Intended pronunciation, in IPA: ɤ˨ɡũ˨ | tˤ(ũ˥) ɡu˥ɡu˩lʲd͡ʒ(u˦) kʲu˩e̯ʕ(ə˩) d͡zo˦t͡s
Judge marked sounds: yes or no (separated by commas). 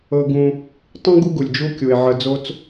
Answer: yes, yes, no